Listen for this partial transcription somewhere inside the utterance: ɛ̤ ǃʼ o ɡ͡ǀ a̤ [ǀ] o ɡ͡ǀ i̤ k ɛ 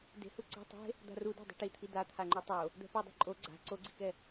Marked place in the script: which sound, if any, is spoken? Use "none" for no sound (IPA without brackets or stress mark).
ǀ